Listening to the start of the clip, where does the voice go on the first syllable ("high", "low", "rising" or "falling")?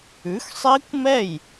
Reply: rising